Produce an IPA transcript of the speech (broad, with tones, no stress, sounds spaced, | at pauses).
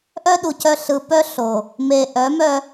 ʔ œ˦ ɗ u˨ c œ˦ ɬ ɯ˨ p œ˦ ɬ o˨ | m e˨ ʔ œ˨˦ m œ˦